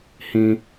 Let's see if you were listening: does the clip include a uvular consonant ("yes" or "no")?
no